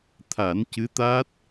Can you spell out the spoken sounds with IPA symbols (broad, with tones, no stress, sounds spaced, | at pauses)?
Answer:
t̪ʰ a˨˩˦ n c ɨ˧˥ t̪ aː˦˥ t̚